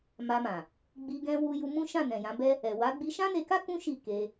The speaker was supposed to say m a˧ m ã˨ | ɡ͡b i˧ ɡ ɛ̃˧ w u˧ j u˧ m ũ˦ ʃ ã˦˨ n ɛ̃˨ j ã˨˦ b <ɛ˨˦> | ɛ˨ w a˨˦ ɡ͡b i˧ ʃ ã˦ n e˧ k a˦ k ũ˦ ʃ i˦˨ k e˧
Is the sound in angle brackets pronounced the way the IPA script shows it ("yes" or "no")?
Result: no